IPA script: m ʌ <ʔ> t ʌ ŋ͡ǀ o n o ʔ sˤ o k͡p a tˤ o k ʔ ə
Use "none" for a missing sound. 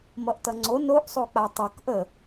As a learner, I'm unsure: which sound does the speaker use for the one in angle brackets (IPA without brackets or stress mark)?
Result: ʔ